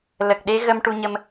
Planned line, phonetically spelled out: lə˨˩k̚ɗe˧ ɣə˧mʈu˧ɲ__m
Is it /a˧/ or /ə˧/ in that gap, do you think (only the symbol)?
ə˧